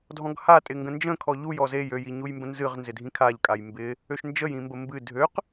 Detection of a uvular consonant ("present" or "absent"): present